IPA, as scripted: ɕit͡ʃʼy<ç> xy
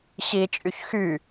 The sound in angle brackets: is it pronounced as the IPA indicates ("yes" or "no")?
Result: yes